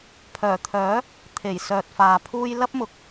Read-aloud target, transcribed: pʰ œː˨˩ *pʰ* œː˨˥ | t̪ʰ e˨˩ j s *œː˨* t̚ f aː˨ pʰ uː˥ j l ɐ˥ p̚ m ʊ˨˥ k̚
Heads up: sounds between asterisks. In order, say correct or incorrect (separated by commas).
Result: incorrect, correct